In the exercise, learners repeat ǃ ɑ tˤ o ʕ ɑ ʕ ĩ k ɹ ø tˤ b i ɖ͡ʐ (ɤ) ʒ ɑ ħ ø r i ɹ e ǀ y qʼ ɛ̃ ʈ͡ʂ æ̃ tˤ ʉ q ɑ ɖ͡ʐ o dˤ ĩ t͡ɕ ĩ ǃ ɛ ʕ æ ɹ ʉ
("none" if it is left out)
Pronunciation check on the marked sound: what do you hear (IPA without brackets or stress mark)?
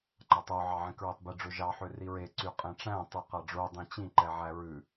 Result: ɵ